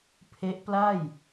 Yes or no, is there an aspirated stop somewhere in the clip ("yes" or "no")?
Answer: yes